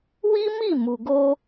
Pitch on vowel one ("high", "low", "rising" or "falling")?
high